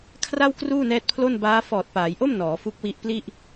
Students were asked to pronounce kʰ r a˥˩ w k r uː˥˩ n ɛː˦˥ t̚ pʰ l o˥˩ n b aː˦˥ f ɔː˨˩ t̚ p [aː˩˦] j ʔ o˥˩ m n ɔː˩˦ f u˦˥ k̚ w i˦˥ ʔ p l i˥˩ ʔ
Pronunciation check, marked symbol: correct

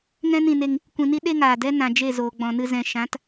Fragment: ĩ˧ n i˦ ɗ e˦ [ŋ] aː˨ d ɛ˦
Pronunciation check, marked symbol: correct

